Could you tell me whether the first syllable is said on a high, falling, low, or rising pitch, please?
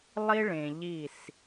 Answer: high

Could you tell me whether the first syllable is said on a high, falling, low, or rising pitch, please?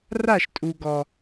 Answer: falling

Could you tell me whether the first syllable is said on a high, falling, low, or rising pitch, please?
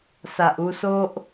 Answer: low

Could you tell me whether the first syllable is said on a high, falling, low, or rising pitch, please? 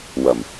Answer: low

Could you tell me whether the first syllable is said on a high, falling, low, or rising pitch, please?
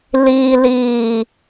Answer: low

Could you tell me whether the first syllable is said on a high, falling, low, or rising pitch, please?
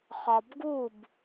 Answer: low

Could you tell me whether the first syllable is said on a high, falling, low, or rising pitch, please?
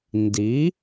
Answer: rising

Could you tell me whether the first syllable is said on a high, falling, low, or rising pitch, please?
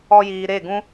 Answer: high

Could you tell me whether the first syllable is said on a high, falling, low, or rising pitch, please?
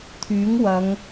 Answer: rising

